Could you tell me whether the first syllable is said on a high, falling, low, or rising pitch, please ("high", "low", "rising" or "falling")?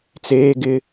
high